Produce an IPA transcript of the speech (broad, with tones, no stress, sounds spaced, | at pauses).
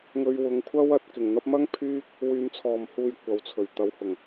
ŋ ɵ˨˧ ɥ w ʊ˨˧ ŋ kʷʰ ɐ˥ w ɐ˨˥ t̚ k ɪ˨˩ ŋ n̪ ɐ˨˥ p̚ m ɐ˥ ŋ pʰ yː˥ k̚ | w yː˨ m t͡sʰ ɔː˨˩ m h uː˨ j kʷ ɐ˨ w t͡sʰ ɵ˨˩ ɥ t̪ ɐ˨˥ w h ʊ˨˩ ŋ